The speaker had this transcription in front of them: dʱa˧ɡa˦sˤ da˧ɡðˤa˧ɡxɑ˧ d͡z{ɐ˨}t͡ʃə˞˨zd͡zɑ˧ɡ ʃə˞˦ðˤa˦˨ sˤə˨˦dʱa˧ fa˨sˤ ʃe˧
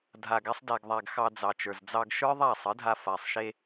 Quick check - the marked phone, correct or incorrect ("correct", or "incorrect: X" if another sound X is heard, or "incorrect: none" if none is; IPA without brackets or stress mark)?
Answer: incorrect: ɑ˨